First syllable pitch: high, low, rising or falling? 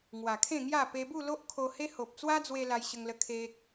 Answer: low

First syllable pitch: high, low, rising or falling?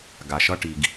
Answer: low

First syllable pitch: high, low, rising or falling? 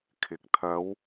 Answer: rising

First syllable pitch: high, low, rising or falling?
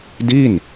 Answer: falling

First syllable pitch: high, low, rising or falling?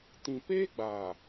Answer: low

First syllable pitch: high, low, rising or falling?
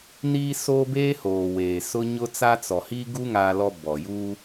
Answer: high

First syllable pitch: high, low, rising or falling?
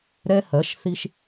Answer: high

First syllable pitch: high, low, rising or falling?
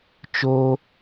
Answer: high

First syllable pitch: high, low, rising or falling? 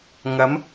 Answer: rising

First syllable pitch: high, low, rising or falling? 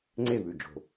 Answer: falling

